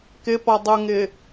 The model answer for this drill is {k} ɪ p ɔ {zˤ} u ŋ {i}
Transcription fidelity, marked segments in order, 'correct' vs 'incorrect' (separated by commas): correct, incorrect, incorrect